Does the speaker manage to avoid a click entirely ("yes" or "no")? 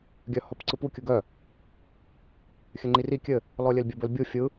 no